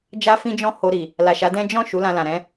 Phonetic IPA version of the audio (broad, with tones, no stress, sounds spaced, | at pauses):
d͡ʒ a˦ f ĩ˦ d͡ʒ ɔ̃˦ h o˧ ɾ i˨ | l a˨ ʃ a˨˦ d ɛ̃˦ d͡ʒ ɔ̃˦˨ ʃ u˨˦ l ã˧ l ã˨ ɾ ɛ̃˨˦